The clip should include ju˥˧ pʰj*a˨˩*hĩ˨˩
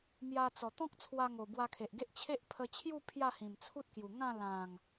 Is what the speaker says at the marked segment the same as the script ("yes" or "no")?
no